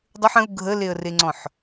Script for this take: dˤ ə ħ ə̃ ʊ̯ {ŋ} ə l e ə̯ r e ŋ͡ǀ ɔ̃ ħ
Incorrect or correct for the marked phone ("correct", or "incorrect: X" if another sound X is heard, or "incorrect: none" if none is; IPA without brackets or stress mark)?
incorrect: ɡʱ